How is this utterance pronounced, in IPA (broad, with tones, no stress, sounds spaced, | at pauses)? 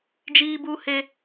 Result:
d͡ʒ iː˦ b u˦ h e˦